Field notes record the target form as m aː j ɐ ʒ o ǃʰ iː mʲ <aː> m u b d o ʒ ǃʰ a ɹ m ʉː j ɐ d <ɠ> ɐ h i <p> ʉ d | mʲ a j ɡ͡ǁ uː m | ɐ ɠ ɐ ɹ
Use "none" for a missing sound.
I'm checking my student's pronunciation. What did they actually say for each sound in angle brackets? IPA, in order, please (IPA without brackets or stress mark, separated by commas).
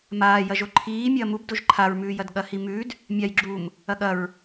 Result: ɐː, ɠ, m